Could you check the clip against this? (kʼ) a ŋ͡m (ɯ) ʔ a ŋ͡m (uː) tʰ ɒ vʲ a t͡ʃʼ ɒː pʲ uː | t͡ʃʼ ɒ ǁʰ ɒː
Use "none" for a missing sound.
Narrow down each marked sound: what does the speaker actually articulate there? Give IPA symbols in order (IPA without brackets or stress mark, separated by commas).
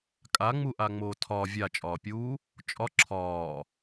kʼ, u, oː